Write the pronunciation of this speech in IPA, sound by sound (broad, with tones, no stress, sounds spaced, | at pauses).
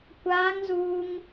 kʷ aː˦ ŋ z uː˦ ŋ